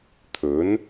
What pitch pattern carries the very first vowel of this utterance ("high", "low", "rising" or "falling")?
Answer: rising